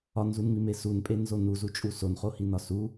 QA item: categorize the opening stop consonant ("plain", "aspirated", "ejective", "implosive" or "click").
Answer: ejective